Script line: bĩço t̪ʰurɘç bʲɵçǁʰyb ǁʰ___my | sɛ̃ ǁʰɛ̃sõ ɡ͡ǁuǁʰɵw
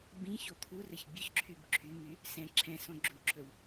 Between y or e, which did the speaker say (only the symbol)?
y